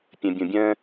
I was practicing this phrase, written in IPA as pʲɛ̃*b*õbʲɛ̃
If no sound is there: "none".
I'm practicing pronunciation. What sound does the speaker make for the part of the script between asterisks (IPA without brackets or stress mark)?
bʲ